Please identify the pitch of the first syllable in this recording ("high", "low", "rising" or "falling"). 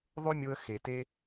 high